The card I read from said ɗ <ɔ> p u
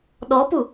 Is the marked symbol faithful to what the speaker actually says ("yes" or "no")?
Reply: yes